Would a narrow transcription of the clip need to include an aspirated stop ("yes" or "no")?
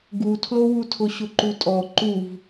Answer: yes